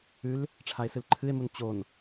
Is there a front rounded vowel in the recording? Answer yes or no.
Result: no